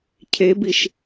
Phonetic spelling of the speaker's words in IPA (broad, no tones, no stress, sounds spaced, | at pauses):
cʰ e b i ʃ